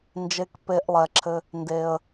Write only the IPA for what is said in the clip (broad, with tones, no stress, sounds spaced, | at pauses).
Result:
n d͡ʒ e˧ k p e˧ ʔ lˠ ɛ˨ ǁʰ ɘ˧ | n d e˨ ə̯